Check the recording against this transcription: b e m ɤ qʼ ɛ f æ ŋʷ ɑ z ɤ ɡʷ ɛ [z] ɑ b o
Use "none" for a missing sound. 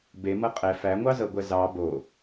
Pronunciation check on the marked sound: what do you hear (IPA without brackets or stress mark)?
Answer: z